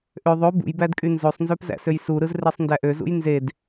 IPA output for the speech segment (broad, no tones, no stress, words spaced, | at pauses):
ʔø ðˤo bṵj bædkʼynzosˤnzøp zæ̰søjsuɾɯz resˤndæʔøzṵj nzed